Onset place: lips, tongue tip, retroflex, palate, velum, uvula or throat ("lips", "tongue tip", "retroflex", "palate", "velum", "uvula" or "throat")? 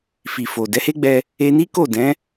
lips